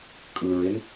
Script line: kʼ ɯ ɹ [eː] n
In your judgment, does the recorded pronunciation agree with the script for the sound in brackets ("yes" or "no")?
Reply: no